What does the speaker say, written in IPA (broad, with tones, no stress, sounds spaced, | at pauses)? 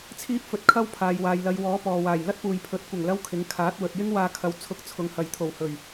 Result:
t͡sʰ iː˥ p̚ f ɵ˨˥ t̚ kʰ ɐ˥ w pʰ aː˨ j w aː˨ j l ɐ˨˧ j w ɔː˨˥ p ɔː˨ w aː˨˩ j l ɐ˥ t̚ p uː˨ j pʰ ɵ˨˥ t̚ kʷ ɐ˨˩ ŋ l ɐ˥ w kʰ ɪ˨˥ ŋ kʰ aː˨˥ t̚ w ɵ˨ t̚ j ɪ˥ ŋ w aː˧ kʰ ɐ˨˧ w t͡sʰ ʊ˧ k̚ t͡sʰ ʊ˨˧ ŋ h ɐ˨ j t̪ʰ o˨˩ w h ɵ˨˩ ɥ